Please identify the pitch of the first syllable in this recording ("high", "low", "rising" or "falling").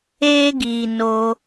high